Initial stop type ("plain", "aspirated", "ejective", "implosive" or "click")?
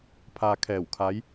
aspirated